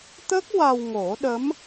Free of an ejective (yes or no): yes